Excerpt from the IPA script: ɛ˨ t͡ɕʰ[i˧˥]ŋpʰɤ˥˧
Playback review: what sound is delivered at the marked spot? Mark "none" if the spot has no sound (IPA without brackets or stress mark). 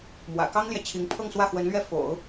i˧˥